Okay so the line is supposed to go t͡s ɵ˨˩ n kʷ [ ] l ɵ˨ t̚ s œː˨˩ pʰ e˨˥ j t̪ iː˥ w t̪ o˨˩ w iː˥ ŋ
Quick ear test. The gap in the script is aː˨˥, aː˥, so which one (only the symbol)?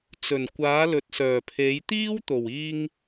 aː˨˥